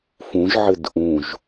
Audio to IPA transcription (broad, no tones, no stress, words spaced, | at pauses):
fũʒʕɘd ʔũʒ